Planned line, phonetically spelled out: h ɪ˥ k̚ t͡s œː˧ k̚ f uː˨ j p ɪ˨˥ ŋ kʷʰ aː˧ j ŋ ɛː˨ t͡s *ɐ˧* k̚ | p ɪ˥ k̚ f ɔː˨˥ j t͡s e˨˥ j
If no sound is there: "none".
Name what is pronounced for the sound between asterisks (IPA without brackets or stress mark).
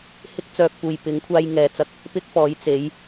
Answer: ɐ˧